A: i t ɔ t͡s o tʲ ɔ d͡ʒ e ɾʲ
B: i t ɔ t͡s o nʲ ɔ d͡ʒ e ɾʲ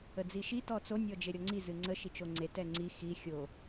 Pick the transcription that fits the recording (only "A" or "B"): B